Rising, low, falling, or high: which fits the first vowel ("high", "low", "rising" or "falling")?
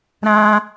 high